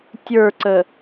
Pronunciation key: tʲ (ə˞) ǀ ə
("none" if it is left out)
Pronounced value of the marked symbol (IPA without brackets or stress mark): ə˞